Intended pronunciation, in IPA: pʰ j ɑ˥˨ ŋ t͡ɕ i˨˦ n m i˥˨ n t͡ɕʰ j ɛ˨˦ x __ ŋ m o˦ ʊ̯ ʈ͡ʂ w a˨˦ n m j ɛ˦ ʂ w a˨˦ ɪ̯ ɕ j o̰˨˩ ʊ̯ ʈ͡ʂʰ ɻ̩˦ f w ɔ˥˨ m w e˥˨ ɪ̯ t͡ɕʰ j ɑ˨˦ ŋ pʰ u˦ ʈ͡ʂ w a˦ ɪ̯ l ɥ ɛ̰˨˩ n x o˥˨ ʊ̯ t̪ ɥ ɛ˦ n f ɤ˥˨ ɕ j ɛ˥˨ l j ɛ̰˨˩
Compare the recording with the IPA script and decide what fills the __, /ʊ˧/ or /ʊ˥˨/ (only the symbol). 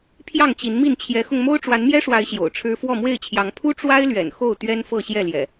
ʊ˧